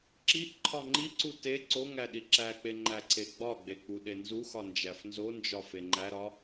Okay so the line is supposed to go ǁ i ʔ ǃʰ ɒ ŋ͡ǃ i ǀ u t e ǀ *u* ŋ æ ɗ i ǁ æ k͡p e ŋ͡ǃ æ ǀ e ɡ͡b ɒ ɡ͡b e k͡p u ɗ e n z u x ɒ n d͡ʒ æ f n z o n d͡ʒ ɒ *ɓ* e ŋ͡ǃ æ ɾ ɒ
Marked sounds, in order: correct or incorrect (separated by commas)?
incorrect, incorrect